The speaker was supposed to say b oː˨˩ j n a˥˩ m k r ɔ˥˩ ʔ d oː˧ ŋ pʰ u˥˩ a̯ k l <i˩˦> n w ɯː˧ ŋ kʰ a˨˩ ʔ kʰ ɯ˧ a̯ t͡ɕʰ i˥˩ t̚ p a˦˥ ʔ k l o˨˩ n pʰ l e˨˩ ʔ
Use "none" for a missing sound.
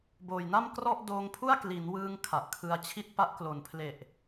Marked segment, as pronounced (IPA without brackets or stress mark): i˩˦